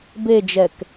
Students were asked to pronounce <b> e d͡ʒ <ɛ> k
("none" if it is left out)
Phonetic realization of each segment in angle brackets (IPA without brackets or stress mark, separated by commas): b, ɛ